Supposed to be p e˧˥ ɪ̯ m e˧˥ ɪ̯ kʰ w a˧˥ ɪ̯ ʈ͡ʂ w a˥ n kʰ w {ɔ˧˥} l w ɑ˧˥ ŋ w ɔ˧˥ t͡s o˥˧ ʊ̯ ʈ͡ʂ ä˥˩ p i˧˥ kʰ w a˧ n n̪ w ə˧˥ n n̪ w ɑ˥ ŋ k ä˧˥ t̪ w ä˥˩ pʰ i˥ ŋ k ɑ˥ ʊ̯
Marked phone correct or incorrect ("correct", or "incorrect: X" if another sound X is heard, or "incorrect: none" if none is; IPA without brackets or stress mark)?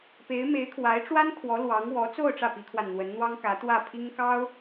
correct